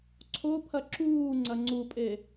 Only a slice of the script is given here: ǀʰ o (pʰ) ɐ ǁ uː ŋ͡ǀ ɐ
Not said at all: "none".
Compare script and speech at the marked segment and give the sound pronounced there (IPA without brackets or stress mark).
pʰ